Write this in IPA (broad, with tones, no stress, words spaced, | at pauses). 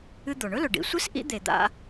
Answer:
ɨ˦d̪o˩ ɳɵ˥lɵ˩ ɖḭ˨sʷɨ˥s ʔḭ˥d̪e˨d̪a̰˦